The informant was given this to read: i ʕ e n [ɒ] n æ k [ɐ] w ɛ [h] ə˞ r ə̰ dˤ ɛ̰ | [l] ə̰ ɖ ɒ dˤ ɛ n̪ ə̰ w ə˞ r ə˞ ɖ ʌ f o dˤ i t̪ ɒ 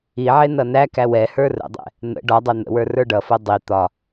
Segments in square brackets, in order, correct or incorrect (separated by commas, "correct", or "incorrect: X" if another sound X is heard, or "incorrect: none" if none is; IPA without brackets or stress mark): incorrect: ʌ, incorrect: æ, correct, incorrect: n̪